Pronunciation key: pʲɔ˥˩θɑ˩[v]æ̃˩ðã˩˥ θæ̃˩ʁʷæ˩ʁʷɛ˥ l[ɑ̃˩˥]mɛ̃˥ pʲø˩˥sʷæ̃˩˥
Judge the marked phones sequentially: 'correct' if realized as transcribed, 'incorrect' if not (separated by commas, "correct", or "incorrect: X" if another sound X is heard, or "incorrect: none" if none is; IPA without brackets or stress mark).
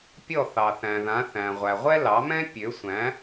incorrect: θ, incorrect: ɑ˩˥